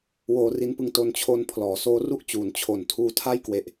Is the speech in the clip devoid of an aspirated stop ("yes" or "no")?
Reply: no